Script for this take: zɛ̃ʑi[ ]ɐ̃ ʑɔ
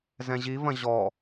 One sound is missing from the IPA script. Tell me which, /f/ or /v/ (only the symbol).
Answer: v